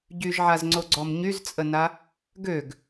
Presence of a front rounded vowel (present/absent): present